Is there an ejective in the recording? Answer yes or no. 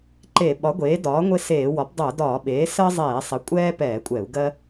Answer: yes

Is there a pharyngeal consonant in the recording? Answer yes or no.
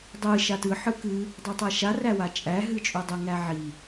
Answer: yes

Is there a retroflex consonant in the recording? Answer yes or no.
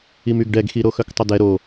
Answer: yes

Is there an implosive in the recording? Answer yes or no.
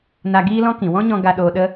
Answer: yes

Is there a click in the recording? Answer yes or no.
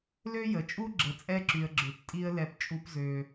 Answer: yes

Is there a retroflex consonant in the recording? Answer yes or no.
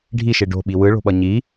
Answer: yes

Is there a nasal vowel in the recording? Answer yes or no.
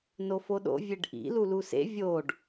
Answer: no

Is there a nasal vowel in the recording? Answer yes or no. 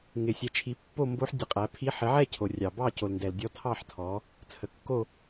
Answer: no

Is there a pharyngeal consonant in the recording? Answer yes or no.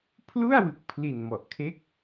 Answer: no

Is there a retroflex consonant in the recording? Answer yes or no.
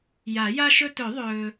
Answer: no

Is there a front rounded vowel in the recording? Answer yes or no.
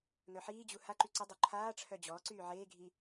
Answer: yes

